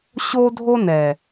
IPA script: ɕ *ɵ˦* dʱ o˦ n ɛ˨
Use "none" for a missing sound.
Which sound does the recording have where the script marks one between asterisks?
o˦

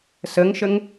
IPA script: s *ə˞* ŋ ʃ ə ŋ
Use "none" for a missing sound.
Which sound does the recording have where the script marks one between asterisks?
ə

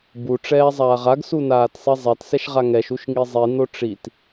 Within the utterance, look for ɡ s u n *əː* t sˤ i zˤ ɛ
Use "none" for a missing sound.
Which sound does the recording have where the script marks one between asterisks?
aː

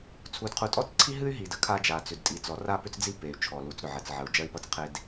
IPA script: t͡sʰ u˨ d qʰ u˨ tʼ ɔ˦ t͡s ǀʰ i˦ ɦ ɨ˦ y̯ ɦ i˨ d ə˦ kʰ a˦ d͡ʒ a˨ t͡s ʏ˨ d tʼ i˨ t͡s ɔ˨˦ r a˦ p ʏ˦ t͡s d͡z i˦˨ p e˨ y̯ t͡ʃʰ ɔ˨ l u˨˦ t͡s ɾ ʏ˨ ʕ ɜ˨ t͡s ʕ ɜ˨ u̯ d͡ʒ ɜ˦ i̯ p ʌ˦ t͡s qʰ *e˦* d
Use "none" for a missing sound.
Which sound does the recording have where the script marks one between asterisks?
e˦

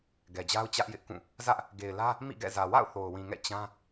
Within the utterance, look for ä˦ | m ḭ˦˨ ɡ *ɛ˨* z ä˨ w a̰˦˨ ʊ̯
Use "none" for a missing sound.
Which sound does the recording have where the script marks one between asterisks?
ɛ̰˦˨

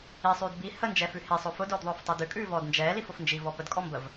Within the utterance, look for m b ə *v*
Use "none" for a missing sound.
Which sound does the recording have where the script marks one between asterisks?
v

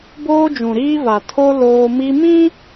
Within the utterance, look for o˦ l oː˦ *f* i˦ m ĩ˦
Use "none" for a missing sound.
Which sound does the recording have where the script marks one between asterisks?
m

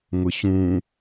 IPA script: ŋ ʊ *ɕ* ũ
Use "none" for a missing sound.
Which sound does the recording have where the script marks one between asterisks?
ɕ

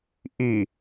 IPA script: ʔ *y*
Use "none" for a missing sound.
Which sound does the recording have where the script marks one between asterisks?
i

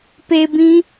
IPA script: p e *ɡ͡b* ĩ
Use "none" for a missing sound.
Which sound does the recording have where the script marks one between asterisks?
b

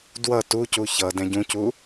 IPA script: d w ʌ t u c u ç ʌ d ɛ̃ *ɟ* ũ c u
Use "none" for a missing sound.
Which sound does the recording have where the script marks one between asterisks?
ɟ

